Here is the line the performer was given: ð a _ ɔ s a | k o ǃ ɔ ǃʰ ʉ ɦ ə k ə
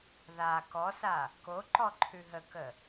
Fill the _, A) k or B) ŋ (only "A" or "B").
A